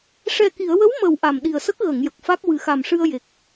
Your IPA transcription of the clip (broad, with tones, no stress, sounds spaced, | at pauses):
ʂ ɛ˨˩ k i˨˩˨ ə̯ w ə˧˥ w m əː˨˩ w ʔ a˨˩ m ɗ i˨˩ ə̯ s ə˦˥ k̚ ɣ ə˨˩˨ ŋ j ə˨˩ k̚ f a˦˥ k̚ w ɨ˨˩ x a˨˩ m ʂ ɨ˧ ə̯ j e˨˩ k̚